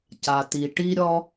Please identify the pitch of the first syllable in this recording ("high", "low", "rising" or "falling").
low